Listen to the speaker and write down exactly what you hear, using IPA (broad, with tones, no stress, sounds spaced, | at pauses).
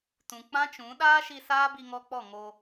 t ũ˨ k͡p ã˦ t͡ʃ ũ˨˦ ɗ aː˦ ʃ i˧ s aː˦ b i˧ ŋ ɔ˧ k͡p ɔ˦˨ ŋ o˧